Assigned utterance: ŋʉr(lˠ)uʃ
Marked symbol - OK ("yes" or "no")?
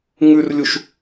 no